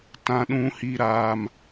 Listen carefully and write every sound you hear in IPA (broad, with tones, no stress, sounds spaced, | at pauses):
t ã˦ ɗ ũ˦ h i˦ ɾ aː˦ m